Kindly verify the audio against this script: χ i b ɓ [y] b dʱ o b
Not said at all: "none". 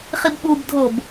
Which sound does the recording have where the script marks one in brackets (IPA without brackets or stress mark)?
u